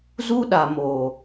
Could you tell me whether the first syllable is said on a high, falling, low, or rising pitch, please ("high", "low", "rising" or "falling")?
high